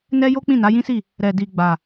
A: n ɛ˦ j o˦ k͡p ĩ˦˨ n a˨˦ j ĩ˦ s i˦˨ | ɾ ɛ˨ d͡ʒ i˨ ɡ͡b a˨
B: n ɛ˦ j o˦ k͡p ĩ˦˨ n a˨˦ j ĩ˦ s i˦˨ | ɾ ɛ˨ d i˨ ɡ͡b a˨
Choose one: B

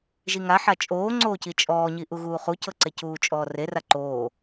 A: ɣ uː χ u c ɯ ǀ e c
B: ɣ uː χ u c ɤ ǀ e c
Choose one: B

